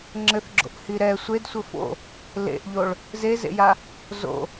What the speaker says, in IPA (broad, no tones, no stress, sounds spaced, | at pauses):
ŋ͡ǁ ɘ θ ɡ͡ǁ o̰ ʔ h i ɾ ɛ sʷ e d sʷ ɘ f o̰ | l ḛ ʔ ʎ o ɭ | z e z ḛ j a | z o̰